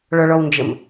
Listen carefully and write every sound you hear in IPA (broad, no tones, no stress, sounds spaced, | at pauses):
ɭ ɔ ɭ ɔ w n d͡ʒ ə m